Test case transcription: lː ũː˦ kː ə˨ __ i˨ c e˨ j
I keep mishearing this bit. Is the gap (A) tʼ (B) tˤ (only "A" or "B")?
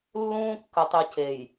B